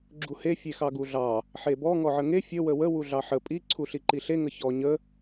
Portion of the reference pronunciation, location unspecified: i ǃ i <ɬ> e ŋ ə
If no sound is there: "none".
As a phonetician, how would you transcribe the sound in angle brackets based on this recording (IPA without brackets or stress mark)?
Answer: ɬ